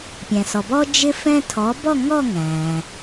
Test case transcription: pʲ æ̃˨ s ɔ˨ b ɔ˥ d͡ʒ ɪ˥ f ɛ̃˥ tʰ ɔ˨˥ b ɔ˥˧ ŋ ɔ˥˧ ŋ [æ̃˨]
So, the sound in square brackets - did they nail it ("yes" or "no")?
yes